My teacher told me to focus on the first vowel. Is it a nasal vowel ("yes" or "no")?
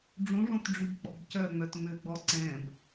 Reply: yes